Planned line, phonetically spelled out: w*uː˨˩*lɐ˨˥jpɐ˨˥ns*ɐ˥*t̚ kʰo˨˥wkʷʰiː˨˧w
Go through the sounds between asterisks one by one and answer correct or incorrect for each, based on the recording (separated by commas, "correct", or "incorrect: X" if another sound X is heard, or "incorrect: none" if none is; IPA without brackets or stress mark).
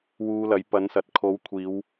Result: incorrect: uː˧, incorrect: ɐ˨